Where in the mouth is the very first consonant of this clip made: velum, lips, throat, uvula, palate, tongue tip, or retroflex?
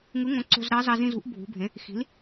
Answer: velum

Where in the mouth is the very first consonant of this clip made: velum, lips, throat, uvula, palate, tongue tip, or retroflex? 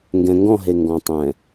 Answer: velum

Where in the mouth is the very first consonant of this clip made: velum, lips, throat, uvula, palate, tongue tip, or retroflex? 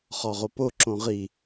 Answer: uvula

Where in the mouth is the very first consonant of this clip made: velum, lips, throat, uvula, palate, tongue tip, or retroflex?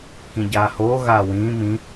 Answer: velum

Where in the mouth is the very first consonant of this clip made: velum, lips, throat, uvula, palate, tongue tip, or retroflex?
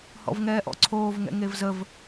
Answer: throat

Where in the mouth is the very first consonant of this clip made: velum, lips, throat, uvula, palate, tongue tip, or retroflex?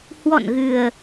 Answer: throat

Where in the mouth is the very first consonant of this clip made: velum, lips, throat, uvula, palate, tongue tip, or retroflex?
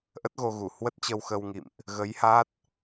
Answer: throat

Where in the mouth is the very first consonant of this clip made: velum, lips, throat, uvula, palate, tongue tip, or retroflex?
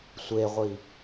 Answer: tongue tip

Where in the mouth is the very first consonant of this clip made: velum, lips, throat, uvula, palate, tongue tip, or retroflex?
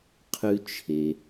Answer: uvula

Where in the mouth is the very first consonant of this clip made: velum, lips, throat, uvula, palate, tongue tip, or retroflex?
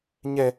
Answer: palate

